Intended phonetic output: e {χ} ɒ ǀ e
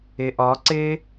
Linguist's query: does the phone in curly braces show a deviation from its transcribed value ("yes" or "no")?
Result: yes